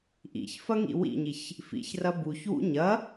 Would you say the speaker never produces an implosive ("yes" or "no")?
yes